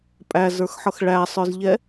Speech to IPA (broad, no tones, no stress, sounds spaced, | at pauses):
pʼ æ z ə˞ x ħ ʌ x ɭ æ sˤ ə˞ z ʎ ɛ